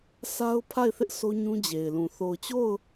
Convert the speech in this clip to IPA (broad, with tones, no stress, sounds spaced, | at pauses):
sʰ a˦ ʊ̯ pʰ a˦˨ ɪ̯ θ ɪ˦ ʔ s o˦ ɲ ũ˦ d͡ʑ e˨ ɪ̯ l ũ˨ θ o˨ ʊ̯ t͡ɕ o˦˨ ʊ̯